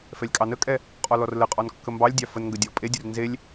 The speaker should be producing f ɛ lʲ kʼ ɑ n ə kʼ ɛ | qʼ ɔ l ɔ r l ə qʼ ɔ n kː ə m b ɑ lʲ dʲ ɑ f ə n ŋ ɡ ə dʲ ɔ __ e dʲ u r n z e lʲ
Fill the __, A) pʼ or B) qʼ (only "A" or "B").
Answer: A